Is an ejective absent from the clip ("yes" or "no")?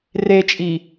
no